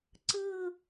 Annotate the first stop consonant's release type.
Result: click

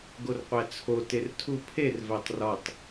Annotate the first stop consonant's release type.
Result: plain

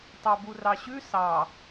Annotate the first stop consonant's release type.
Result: plain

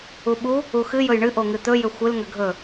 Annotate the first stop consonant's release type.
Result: implosive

